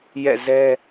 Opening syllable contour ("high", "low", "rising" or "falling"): falling